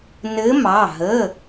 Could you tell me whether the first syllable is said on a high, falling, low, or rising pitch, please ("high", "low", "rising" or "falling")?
rising